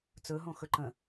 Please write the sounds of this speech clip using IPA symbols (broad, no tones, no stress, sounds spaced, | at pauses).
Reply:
t͡s ɵ ɦ õ x ɵ ǃ ə̃